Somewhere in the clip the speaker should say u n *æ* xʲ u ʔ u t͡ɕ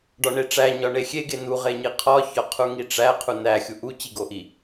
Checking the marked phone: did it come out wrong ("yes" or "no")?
no